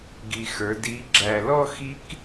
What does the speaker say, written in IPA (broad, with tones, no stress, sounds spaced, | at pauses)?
ɡ i˨˩ x ə˞˩˧ d i˨˥ ɡ͡ǁ æ˨˩ l ɔ˥˧ x i˦˥ k